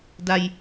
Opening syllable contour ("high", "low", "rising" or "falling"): high